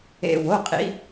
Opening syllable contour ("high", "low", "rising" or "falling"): low